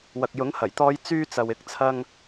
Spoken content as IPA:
w ɐ˨ k̚ j ʊ˨˥ ŋ h ɐ˨˩ j t̪ ɔː˧ j t͡s yː˧ t͡s ɐ˨ w ɪ˨˥ k̚ t͡sʰ ɐ˧ ŋ

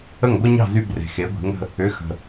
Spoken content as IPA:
ə˥˩ ŋ ɡʷ ɐ˥ ɲ ɑ̤˥˩ z y˧ b r e̤˩ x e˩˥ ɡʷ e̤˩˥ ŋ ə̤˧ | ʏ˩˥ x ə̤˩

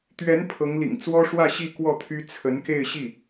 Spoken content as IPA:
t̪ ɥ ɛ˧˥ n pʰ ɤ˧˥ ŋ l ḭ˨˩ ŋ t͡s w ɔ˥ ʂ w ä˥˧ ɕ i˥˧ k w ɔ˥˩ t̪ʰ y˥ t͡sʰ ə˧˥ n k e˥˧ ɪ̯ ɕ i˥˩

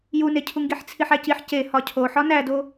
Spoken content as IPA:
j u n e cʰ u ŋ ɡ i ħ t͡sʰ i ħ æ c i ħ c e h ɒ cʰ o ħ ɒ n æ d o

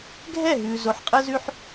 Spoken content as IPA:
ɡʱ ɛ˦˨ ɦ ʉː˨ z o˨˦ ħ qʼ əː˦ z ʉ˦ ħ

